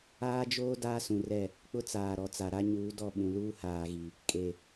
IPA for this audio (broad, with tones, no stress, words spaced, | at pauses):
aː˦d͡ʒoː˦ daː˦sũ˨rɛ˦˨ | k͡pʊ˦t͡saː˨ɾɔ˨ t͡sa˨ɾa˦ɲuː˨˦dɔ˦˨ ɓũ˨luː˦haː˨ɣi˨ | kʼe˨